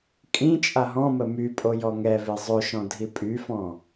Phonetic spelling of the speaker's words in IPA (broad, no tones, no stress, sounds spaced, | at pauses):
kʼ ĩ t͡ʃʼ a ɦ ɔ̃ m ə m y pʼ o j ɔ ŋ ɛ v e zˤ ø ʃ ɔ̃ dʱ i pʼ y f ɔ̃